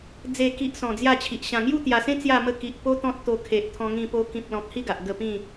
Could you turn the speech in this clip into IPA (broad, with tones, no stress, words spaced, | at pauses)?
d͡ze˨˩ki˨ʔ sɔ̃˨˩d͡zja˥˧t͡ɕʰi˨ʔ ɕã˨˩ŋju˥˧t̪ja˨˩sẽ˦ t͡sja˥˧mə˥˧ ki˨ʔ po˦t̪ɔ̃˦t̚t̪o˧ kʰe˨ʔt̪ʰɔ̃˧ŋĩ˧po˧ kĩ˨p̚lɔ̃˨k̚ hi˥˧ɡa˨ʔ ɡə˥˧ pĩ˥˧